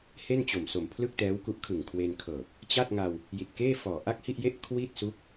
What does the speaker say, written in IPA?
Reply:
h e˥˩ n t͡ɕ o˨˩ m s o˨˩ m pʰ l ɯ˥˩ k̚ t ɛː˦˥ w k u˦˥ ʔ kʰ ɯ˨˩ ŋ kʰ w e˧ n kʰ ɤː˨˩ p̚ | t͡ɕ a˥˩ t̚ ŋ a˧ w | j i˨˩ t̚ k eː˥˩ f ɔː˨˩ ʔ a˥˩ k̚ h i˥˩ ʔ j e˥˩ ʔ kʰ w i˥˩ t̚ s u˦˥ k̚

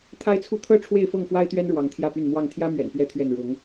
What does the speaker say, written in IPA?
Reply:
t̪ʰ a˦ ɪ̯ t͡sʰ u˥˨ t̪ʰ ɤ˦ ʈ͡ʂʰ w e˥˨ ɪ̯ f ɤ˥˨ ŋ f w a˦ ɪ̯ t̪ ɥ ɛ˦ n ɻ w ɑ˨˦ ŋ t̪ʰ j ä˥˨ p y˥˨ n m w ɑ˥˨ ŋ t̪ʰ j ä˦ m ɥ ɛ̰˨˩ n p ɥ ɛ˦ t̪ʰ ɥ ɛ˥˨ n ɻ ʊ˨˦ ŋ

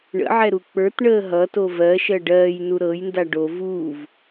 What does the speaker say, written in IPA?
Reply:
ɳ ə̰ ʕ ɛ ɾ u k͡p ə˞ t ɳ əː ɦ ʌ t o v ɜ ʃ ɜ ɖ ɜː j n u ɾ ɤ j n d a ɖ o v uː v

